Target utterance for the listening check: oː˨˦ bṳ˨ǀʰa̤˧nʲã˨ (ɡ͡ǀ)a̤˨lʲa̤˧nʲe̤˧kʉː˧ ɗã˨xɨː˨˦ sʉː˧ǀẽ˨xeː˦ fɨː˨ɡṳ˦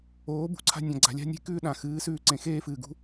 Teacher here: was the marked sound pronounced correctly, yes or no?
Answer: yes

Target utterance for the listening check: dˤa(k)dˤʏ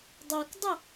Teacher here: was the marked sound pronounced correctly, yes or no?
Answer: yes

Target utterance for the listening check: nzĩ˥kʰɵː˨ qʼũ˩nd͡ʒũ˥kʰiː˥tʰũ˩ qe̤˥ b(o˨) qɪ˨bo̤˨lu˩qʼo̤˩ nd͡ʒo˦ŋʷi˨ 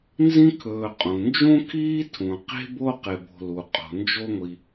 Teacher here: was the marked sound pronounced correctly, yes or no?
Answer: no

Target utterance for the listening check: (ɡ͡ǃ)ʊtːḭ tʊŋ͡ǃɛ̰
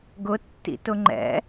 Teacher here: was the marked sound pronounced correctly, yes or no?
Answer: no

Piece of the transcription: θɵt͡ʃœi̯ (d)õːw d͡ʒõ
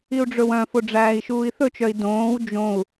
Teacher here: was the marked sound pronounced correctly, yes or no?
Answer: yes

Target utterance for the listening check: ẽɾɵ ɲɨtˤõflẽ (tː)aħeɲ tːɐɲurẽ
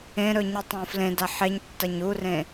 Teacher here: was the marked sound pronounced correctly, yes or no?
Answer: no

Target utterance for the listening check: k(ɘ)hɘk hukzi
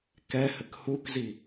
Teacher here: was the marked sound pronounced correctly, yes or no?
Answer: no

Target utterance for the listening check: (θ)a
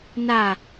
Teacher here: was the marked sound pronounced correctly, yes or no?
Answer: no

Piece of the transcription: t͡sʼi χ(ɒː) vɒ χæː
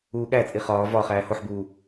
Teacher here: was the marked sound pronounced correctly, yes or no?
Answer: yes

